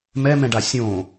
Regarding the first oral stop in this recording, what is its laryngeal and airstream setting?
plain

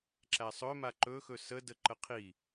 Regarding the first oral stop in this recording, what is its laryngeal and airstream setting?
click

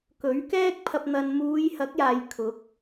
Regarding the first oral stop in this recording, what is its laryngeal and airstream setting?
plain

